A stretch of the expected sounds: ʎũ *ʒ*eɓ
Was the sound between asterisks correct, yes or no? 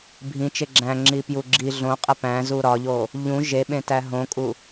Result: yes